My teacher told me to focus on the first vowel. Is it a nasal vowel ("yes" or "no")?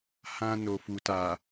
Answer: yes